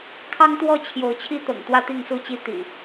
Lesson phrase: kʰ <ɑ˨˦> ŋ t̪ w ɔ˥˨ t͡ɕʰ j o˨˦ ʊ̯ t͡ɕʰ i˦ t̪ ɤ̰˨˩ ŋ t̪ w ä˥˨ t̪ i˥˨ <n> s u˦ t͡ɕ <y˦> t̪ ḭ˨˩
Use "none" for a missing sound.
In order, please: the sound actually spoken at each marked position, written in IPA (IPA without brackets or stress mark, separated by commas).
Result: ɑ˦, ŋ, i˦